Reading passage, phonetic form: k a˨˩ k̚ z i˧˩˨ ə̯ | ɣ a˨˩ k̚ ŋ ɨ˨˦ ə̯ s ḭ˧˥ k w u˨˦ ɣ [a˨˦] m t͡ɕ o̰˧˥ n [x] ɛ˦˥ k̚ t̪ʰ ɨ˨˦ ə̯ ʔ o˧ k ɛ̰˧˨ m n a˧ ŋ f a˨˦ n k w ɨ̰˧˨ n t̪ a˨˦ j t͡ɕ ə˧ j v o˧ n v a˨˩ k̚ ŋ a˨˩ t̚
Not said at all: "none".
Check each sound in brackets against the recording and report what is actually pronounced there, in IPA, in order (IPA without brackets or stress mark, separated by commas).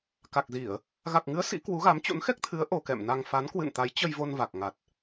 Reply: a˨˦, x